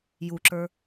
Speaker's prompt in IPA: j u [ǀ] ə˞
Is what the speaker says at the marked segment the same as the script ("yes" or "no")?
no